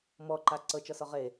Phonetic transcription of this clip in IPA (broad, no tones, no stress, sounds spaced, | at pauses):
m ɔ ǃ a ǀ ɤ t͡ʃ ɒ s ɒ ʁ e